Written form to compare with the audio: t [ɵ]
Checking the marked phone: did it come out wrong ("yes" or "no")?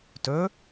no